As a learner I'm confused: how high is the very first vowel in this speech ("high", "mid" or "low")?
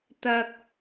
low